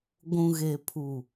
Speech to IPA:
ɡʷ ũ˨ ɣ e˨ pʰ u˨

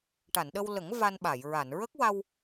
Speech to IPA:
ʈ a˨˩˨ n ɗ ə˧ w l ə˨˩˦ ŋ v a˧ n ɓ a˨˩˨ j ɹ a˨˩˨ n ɹ ə˦˥ k̚ w a˧ w

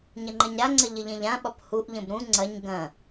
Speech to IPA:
ɲ ɐ ŋ͡ǃ ɐ ɲ ɾ a ŋ͡ǀ ɐ ʎ ə ʎ ẽ ʎ ã ɓ ɒ p h u ʔ ʎ ə̃ b ɾ ũ ŋ͡ǀ ɐ ɲ ɡ ɐ̃

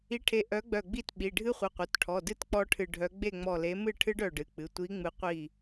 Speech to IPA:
i˨˥ ʈʰ e˨˥ ʔ œ˨˥ ɡ͡b œ˧˩ ɡ͡b i˥˨ t ɓ i˩˧˩ ɖʱ ɨ˦˥ χʷ ɨ˩˧˩ qʷ œ˩˧˩ t ʈʰ ɔ˩˧˩ d ɨ˥˨ t k͡p ɔ˦˥ ʈʰ ɨ˧˩ ɖʱ œ˨˥ ɡ͡b e˥˨ ŋ͡m ɔ˧˩ l e˨˥ m ɨ˥˨ ʈʰ ɨ˦˥ ɖ œ˥˨ ɖ ɨ˩˧˩ k͡p ɨ˩˧˩ tʷ i˨˥ ŋ͡m ɨ˨˥ qʷ i˥˨

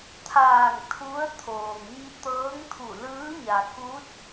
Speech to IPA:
t̪ʰ aː˧˩ ŋ t̪ʰ u˧˥ ə̯ t̪ʰ oː˩ ŋ ɲ i˧ t̪ ɤː˧˥ ŋ t̪ʰ u˧˩ l ɯː˧˥ ɲ a˩ k u˧˥ t̚

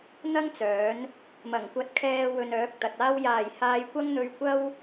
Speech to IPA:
n̪ ɐ˥ ŋ t͡s œː˨˥ n | m ɐ˨˩ ŋ kʷ ɐ˧ t̚ kʰ ɛː˧ w ɵ˧ n œː˨˥ k̚ t̪ ɐ˨ t̚ aː˥ w j aː˨˩ j h aː˧ j kʷ ɐ˥ ŋ n̪ ɵ˧ ɥ kʷ ɐ˥ w

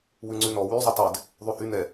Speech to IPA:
w ʉ ŋ͡ǀ ʉ n ɔ w y zˤ y tˤ ɛ d | ðˤ ʉ h y n ɛ

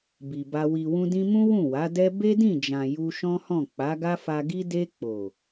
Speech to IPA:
b i˨ b a˧ w i˨ w ũ˧ d ĩ˧ m ũ˦ w ũ˦˨ w a˨˦ d ɛ˦ b e˦ d ĩ˦˨ d͡ʒ ã˨ j u˧ ʃ ɔ̃˦ h ɔ̃˦˨ k͡p a˨˦ ɡ a˦ f a˧ ɡ i˦ d e˧ k͡p o˨

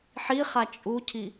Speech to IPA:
ħ i χ a t͡ʃʼ u cʰ i

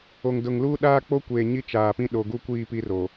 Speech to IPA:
o˨ ŋ d ʊ˨ ŋ l u˦ ɗ aː˦ k͡p o˦ kʷ eː˨ ɲ i˦ t͡ʃ aː˨ p ĩ˦ ɗ o˨ ɡ u˦ kʷ iː˦˨ p i˦ r o˨

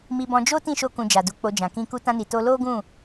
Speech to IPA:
m i˧ b ɔ̃˧ d͡ʒ o˦ t ĩ˦˨ ʃ o˧ k ũ˨ d͡ʒ a˨ d u˧ k͡p o˧ d͡ʒ ã˨ k ĩ˧ k u˧ t ã˧ n i˨ t o˧ l o˦ ɡ ũ˦˨

